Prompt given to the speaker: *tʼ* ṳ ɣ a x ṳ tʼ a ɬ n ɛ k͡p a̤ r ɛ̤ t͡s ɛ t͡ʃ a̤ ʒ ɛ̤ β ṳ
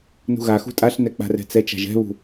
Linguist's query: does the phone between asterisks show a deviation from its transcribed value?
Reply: yes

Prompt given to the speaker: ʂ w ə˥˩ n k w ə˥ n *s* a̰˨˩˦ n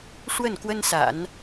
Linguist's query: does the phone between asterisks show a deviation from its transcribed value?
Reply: no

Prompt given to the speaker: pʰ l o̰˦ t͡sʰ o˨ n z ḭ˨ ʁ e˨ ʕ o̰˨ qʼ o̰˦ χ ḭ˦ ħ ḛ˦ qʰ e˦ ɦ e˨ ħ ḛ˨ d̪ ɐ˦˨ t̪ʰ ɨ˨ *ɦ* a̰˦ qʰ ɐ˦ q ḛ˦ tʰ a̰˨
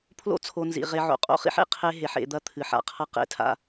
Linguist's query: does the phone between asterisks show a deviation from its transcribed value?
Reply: yes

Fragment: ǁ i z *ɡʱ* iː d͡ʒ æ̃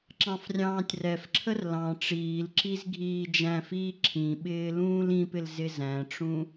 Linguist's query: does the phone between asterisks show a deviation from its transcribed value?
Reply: no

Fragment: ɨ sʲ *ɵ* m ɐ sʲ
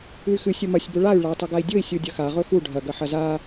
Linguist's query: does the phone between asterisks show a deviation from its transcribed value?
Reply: no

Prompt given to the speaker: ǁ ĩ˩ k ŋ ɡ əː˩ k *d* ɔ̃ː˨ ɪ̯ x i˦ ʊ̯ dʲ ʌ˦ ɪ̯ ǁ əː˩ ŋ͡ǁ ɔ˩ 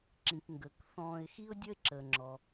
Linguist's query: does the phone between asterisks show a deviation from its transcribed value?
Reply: yes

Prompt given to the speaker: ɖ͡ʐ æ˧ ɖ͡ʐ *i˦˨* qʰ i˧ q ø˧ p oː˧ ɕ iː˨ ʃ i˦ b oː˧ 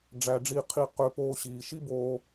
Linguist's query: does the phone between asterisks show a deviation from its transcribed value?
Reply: no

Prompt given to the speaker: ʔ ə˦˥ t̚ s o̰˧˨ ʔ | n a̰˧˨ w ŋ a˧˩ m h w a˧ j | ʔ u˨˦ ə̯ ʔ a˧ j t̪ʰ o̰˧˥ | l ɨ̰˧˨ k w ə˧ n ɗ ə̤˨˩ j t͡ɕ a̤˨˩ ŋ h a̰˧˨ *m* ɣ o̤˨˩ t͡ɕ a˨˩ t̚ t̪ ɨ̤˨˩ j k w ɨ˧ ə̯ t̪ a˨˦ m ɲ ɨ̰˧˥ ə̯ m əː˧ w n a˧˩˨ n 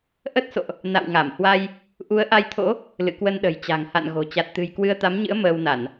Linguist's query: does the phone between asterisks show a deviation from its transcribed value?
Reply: yes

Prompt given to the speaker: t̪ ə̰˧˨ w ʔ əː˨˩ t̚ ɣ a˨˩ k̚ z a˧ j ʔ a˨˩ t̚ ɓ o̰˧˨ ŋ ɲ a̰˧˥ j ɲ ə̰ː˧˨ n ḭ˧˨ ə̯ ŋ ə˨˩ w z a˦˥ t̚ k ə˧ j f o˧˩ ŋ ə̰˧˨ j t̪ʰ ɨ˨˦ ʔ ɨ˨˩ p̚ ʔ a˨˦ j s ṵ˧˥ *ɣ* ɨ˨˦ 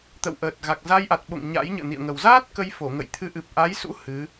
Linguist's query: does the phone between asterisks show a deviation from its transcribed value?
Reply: yes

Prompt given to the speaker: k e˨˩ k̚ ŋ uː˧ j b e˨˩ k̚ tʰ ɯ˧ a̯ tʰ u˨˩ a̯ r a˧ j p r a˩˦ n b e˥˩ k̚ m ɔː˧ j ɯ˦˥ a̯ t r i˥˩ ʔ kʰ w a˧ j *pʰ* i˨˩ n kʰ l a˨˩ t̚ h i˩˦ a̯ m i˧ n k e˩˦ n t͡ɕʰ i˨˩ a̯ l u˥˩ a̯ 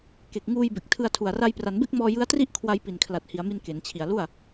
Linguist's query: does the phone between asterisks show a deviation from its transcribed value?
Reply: yes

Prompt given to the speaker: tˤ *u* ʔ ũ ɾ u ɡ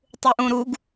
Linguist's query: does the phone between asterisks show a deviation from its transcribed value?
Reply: no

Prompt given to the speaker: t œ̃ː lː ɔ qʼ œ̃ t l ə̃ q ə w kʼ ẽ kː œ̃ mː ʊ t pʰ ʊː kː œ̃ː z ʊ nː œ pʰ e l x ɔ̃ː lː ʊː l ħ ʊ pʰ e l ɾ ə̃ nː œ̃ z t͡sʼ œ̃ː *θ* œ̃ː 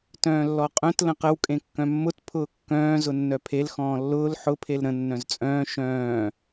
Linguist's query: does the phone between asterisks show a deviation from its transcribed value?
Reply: yes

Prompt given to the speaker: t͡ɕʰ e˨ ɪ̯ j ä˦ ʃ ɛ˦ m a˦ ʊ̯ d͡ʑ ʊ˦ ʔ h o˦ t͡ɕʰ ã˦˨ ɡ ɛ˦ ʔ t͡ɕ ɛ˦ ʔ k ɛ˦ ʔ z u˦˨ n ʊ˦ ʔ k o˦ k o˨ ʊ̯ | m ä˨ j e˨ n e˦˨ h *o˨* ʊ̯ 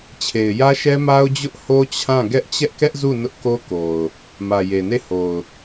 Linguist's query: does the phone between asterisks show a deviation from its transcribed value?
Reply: no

